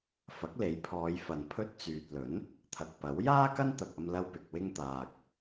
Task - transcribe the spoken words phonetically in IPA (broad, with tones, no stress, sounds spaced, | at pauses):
f ɐ˨˥ k̚ l e˨˥ j pʰ ɔː˨˧ j f ɐ˨ n pʰ ɵ˥ t̚ t͡s yː˨ t̚ l ɵ˨˥ n | t̪ʰ ɐ˨ k̚ p ɐ˨˥ w j aː˥ k ɐ˥ n t̪ ɐ˨ k̚ ɐ˧ m l ɐ˧ w p ɪ˨ k̚ w ɪ˧ ŋ t̪ aː˨ k̚